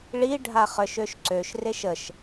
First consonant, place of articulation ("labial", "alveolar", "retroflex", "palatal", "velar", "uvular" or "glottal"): retroflex